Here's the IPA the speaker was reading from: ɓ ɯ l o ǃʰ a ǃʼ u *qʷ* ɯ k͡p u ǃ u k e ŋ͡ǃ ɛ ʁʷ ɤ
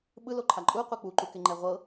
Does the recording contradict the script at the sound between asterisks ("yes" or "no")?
no